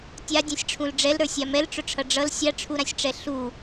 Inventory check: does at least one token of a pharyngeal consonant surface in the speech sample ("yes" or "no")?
no